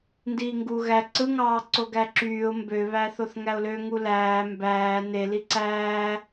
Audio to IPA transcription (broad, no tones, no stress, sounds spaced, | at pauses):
n d iː ŋ ɡ u ɣ æ ǀ ɯ ŋ ɑː ǀ o ɡ æ ǁ yː ʊ̯ m b ø β æ θ o θ ŋ æ ʊ̯ l ø ŋ u l æː m b æː n e l i ǀ æː